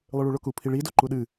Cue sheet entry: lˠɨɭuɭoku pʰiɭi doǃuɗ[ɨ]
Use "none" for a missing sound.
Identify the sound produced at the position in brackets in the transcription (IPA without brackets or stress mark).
ɨ